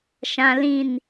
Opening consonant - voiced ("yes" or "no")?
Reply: no